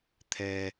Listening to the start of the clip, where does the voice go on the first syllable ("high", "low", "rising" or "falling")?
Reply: low